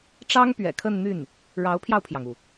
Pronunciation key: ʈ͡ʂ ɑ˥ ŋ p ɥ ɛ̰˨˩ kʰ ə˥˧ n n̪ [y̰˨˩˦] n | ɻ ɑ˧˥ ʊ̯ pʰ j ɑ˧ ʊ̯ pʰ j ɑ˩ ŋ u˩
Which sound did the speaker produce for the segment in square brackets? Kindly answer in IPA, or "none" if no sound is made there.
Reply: y˥˩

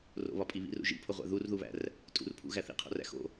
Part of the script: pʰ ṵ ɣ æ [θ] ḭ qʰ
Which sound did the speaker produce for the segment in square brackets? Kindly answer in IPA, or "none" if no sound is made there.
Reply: θ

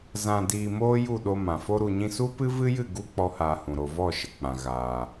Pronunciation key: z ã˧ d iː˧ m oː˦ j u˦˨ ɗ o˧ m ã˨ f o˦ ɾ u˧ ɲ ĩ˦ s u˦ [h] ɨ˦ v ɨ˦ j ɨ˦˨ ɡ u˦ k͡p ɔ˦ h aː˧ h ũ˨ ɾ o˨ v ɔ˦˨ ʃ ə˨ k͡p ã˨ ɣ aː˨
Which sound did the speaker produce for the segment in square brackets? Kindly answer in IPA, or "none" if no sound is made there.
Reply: p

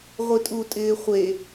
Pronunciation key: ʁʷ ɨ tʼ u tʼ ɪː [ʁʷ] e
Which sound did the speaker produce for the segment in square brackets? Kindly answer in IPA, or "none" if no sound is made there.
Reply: χʷ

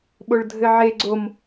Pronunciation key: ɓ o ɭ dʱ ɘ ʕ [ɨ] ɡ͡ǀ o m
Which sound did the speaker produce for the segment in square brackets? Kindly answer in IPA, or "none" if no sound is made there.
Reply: e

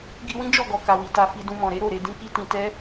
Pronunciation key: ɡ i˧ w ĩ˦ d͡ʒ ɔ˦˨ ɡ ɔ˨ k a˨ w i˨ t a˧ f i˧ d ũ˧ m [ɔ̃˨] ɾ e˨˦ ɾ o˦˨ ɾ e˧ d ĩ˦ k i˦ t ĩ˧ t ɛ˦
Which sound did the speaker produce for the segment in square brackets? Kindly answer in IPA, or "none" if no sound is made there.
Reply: ɔ̃˨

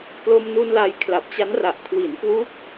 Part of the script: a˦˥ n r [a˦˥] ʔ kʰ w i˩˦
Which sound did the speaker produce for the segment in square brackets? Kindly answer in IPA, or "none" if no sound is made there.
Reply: a˨˩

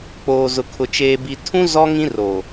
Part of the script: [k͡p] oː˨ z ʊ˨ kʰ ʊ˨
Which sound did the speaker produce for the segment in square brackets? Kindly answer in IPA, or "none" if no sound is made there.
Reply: k͡p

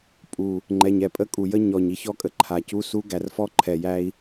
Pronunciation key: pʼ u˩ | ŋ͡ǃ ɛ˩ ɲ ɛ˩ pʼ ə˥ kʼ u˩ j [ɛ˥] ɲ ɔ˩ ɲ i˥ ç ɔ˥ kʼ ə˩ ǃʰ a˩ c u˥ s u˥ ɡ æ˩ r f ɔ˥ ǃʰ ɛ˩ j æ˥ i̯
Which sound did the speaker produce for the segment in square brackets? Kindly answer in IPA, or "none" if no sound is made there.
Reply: ə˥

